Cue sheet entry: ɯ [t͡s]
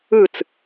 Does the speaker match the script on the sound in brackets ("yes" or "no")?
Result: yes